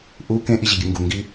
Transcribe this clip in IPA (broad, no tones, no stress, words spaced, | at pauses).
ʔu kẽʔiʑiɡʲɨ ŋɡuŋɡi